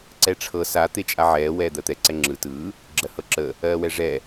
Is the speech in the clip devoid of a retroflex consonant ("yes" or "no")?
no